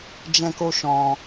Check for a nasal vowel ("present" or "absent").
present